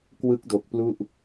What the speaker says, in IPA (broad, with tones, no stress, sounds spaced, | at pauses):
k w ɯ˦˥ k̚ d o˨˩ k̚ p l u˥˩ ʔ